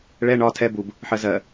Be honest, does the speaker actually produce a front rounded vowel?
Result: no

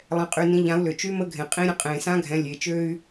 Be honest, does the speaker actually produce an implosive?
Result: no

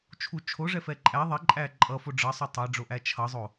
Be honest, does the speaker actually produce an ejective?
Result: yes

